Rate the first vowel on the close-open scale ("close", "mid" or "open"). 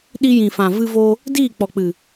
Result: close